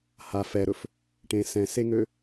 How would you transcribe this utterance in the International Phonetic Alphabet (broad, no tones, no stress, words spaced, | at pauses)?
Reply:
ha fɛɾɵf | ʈẽ sɛ̃seŋø